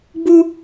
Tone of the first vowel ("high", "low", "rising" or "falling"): high